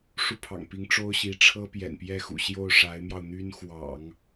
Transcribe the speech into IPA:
ʂu˥˩pʰɑ̰˨˩ŋpi˧˥ŋ ʈ͡ʂo˥ʊ̯ɕi˧˥ ʈ͡ʂʰɤ˥ pjɛ̰˨˩npjɛ˥˩xṵ˨˩ɕjo˥˩ʊ̯ ʂa˧˥ɪ̯mjɑ˧ʊ̯n̪y˥n xwɑ̰˨˩˦ŋ

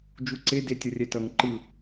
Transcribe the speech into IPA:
d͡ʒuǀe detʲʌrʲɛtʌŋ ǃɯ

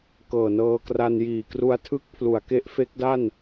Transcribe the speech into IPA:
kɤː˨˩nɤː˧kra˧n jiː˨˩kru˧a̯tʰɯ˦˥k̚ pʰlu˩˦a̯ke˦˥ʔfe˦˥k̚da˥˩n

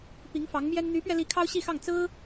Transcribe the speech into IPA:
pi˧˥ŋfɑ˧˥ŋmjɛ˥n n̪y˧˥pɥɛ˧li˧˥ kʰɑ˥ʊ̯ɕi˥˧xɑ˥˩ŋ t͡sɹ̩˥

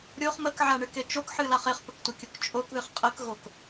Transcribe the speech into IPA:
ɾʲoχ məkʕaɳɨke t͡ʃokħɨlaχ eχpəktʷəkʲok t͡ʃʼokðɨχ qʼəkɣok

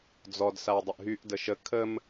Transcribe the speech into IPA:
d͡zɔd sawdˤəʔɦyʔ dəʃə kʰəm

